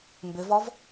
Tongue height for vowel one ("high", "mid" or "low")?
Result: high